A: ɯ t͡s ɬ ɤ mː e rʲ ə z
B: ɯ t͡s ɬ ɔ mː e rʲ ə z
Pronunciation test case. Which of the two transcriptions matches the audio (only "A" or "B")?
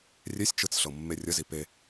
A